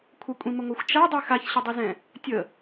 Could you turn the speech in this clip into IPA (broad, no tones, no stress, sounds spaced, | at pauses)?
kʷʰ ə kʷʼ ĩ m ə ŋʷ ɜ xʷ t͡ʃ a dˤ i x a ç ɕ ə dˤ ɨ z ɛ̃ | tʲ ə